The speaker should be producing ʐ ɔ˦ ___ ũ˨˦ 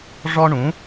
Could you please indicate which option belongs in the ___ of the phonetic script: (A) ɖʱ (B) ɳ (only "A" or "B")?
B